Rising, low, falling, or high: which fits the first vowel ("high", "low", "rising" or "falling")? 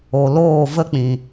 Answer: low